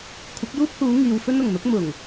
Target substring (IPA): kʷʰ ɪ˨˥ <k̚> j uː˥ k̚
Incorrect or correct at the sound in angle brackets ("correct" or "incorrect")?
correct